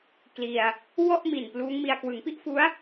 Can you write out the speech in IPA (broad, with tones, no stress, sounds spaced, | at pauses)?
k l i˧ a̯ | w ɔ˥˩ ʔ m i˨˩ n p l uː˦˥ ŋ m i˧ a̯ k w ɯ˩˦ ŋ p i˥˩ ʔ f u˦˥ a̯